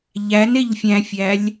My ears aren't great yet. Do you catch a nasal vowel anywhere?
yes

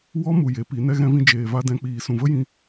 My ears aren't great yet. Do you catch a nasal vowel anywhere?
yes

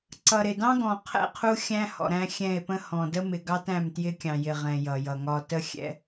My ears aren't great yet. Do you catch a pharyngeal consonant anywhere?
no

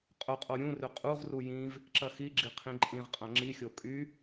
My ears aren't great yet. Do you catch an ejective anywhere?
yes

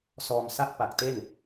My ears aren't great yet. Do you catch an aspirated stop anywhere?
no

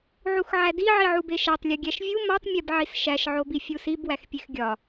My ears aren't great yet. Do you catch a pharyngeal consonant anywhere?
yes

